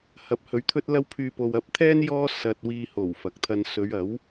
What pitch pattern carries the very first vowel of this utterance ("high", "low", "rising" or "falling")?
rising